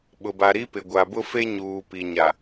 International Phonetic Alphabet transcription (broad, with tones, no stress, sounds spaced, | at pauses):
ɓ ʊ˨ b a˨ ɾ i˦ p ɪ˨ ɡʷ a˨ b ʊ˦ f e˦ ɲ uː˨ p i˨ ɲ a˨